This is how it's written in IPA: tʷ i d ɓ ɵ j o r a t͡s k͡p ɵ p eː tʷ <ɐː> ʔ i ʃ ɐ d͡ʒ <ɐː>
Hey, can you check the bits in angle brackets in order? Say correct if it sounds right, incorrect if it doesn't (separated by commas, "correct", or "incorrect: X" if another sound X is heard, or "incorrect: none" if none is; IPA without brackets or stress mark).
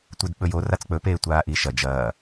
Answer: incorrect: aː, correct